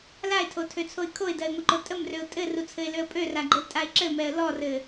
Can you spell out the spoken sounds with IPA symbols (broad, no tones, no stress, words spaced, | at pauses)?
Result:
laɪ̯tʰotʰøt͡sʰoɪ̯ kʰoɪ̯dɜɪ̯ŋʷɘǃo tʼəmrøʊ̯ tʼɘrut͡sʰɘɪ̯løə̯ pʼøraɡ͡ǃɘltʼaɪ̯ ǁɘmɛə̯ lɔrɘ